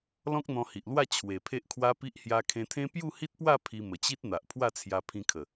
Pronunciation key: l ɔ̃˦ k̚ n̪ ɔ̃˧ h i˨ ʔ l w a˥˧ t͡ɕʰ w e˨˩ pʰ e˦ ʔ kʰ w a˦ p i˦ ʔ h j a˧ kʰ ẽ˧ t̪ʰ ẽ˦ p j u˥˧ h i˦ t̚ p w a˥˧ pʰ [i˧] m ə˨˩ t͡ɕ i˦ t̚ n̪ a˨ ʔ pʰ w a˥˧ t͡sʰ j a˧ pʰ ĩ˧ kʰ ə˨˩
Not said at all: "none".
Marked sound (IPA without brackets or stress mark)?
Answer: i˧